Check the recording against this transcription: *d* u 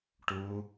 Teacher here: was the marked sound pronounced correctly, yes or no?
no